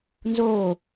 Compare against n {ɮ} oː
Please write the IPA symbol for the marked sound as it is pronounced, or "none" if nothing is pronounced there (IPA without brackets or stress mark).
z